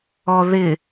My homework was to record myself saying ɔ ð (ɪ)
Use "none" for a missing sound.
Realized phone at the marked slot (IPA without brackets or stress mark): ɪ